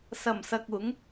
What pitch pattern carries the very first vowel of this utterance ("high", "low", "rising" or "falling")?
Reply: low